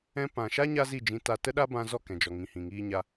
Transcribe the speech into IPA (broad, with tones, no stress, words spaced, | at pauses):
ɛ̃˧pã˨ʃa˦ ɲa˦zi˦˨d͡ʒĩ˧ ta˧ tə˦ɗa˦bã˧zɔ˦˨ kɛ̃˨d͡ʒɔ˨ ŋĩ˨hĩ˨ŋiː˧ɲa˧